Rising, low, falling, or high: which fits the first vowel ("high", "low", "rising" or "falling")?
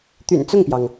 low